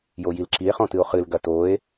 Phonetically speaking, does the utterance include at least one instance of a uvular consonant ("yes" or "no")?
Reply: yes